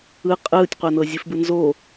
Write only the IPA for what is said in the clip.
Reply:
ɯ qʼɯːtʲqʷanɤ zʲɨfbɯnzo

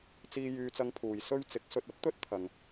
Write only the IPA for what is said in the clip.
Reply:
t͡siː˧ jyː˧t͡sɐ˧ŋpʰuː˨j sɵ˥ɥ t͡sɪ˨˥k̚sɵ˧t̚ɐ˥p̚ t̪ɵ˥t̚t̪ʰɐ˨ŋ

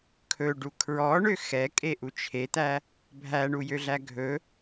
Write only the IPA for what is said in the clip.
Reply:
kʰɵɖu kʰɹɔɳø xɛkʼeʔu t͡ʃʰet̪æ | bʱæɳujøɮæ ɡʱɵ

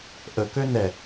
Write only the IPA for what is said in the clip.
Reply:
ʔəkø nɛ

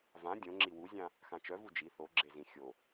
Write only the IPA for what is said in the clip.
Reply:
vã dʲõŋ͡ǁi wuzʲã | xãt͡ʃœvu d͡ʒi θoɡ͡ǁezĩ xʲo

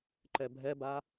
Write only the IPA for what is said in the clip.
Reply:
ǃɛbʱɛba

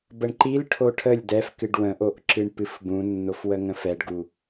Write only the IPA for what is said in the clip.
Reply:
bəɳǃilʈʰo ʈʰəlʲ dɛf kɨɖwə̃ʔoʔ ǁɨɳpɨfbũnːof wəŋə̃fɛɖɡu

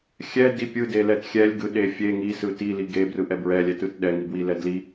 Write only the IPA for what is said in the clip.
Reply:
xʲɛdi pʲɯdelɛt xʲɛlʲɡɯɗe fʲe ŋisɯ tili ɡebrɯʔɛ bɹɛlʲɛtɯt ɗɛŋibwilɛ dli

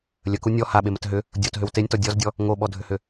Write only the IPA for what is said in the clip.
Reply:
lʲəku nʲɔ haɓemət ɦʏ | dʲotɦʏw tenʲtɔ dʲɔzdʲɔ | ŋoɓɔdʱʏhʏ

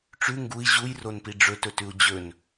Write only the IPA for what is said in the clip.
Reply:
ʈ͡ʂʉ ŋɡui̯ ʑujronpi ɖ͡ʐɵtɵtʉu̯ d͡ʑɵn

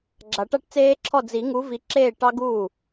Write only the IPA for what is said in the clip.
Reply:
ɡ͡ǁa˨˩˦ʈa˥˧ʈt͡seː˦˥ǁʰɔ˥˩ d͡zi˨˩˦ŋu˨˦ vi˨˦ǁeː˥˩ ʈɑ˦˥ɡuː˥˩

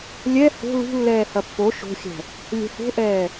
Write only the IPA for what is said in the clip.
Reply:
lʲɛ ho̤ lṳlːɛː hɐpːo ʃo̤xʲɛ̤ | lʲɛ̤ho̤ʔɛː

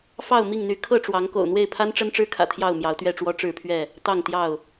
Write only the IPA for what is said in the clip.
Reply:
fɑ˥˨ʊ̯ mi˥˨ŋn̪y˨˦ kʰɤ˥˨ʈ͡ʂwɑ˨˦ŋ ko̰˨˩ʊ̯n̪we˥˨ɪ̯pʰa˦n ʈ͡ʂə˦nʈ͡ʂɻ̩˦kʰä̰˨˩ t̪ʰjɑ˥˨ʊ̯mjɑ˨˦ʊ̯t̪ɥɛ˥˨ʈ͡ʂwɔ˦ ʈ͡ʂɻ̩˥˨pʰɥɛ˥˨ | t̪ɑ˥˨ŋt̪jɑ˥˨ʊ̯

